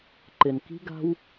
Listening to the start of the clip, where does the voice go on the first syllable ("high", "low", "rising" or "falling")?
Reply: low